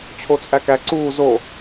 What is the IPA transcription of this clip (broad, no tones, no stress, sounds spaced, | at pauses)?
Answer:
t͡ɕʰ o t͡sʼ æ k æ ǀ uː z o